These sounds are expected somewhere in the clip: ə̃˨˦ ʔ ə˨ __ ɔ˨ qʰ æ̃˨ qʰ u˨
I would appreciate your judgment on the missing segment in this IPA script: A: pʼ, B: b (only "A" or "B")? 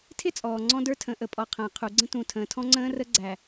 A